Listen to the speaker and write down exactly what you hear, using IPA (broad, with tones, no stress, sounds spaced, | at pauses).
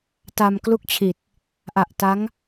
t a˧ m k l u˥˩ k̚ t͡ɕʰ i˨˩ t̚ | ʔ a˨˩ ʔ t a˦˥ ŋ